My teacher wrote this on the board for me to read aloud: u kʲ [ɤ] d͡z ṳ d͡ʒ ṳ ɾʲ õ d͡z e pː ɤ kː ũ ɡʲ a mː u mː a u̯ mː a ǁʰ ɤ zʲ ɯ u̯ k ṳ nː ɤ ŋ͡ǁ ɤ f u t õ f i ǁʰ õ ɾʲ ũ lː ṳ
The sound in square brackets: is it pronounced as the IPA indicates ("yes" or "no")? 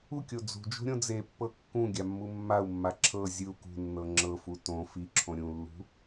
no